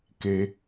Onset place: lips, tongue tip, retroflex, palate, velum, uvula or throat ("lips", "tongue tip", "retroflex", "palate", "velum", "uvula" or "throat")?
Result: velum